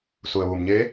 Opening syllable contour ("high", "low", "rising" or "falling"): low